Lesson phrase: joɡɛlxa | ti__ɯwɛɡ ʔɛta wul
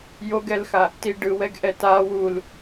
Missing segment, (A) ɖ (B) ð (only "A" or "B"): A